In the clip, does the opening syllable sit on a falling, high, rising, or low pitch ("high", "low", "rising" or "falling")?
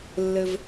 high